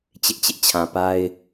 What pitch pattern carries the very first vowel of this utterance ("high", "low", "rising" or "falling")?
high